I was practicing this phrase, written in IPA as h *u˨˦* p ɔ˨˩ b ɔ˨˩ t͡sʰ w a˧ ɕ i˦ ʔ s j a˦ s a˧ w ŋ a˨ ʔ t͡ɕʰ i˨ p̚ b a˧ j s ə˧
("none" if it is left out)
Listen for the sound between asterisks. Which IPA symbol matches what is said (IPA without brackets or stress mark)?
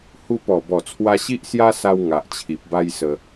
u˧